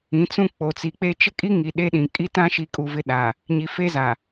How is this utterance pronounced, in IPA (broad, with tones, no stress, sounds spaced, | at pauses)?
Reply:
ĩ˨˦ t͡s ũ˦ k͡p o˨ t͡s i˨ k͡p e˦ t͡ʃ ɪ˦ kʼ i˦ ŋ i˨ ɗ e˦ ɗ ĩ˨ kʼ i˦ t ã˦ ʃ i˨˦ kʼ u˨ v ɪ˦ ɗ a˨ | ɲ i˨ f e˦ z a˨